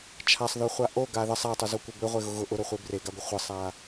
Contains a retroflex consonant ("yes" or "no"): no